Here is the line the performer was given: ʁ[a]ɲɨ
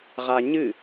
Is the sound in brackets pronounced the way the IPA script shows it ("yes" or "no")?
yes